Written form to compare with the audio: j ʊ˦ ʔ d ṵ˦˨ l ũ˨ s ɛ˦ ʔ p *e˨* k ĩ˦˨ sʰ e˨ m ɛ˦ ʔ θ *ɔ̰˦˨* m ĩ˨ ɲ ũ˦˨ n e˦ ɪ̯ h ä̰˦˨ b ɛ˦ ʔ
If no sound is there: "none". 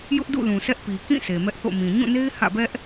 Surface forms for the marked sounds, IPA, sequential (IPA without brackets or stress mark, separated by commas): i˨, o̰˦˨